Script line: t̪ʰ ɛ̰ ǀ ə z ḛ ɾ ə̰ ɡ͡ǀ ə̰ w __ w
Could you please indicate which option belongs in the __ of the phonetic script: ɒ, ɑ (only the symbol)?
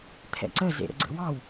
ɑ